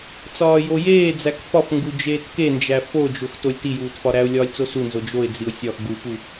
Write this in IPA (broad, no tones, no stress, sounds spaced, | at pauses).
t͡s ɒː j o j eː d͡z æ k f ɒ f ŋ ɡ u d͡ʒ eː t k e n d͡ʒ æ f o d͡ʒ o x t o lʲ t i j uː t f ɒ ɾ æ ʊ̯ lʲ ɒː lʲ t͡s o s u n z o d͡ʒ o ɪ̯ d͡z i ʊ̯ sʲ ɒ x ɡ u p u